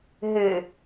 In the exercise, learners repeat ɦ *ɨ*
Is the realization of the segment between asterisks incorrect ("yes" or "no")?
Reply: no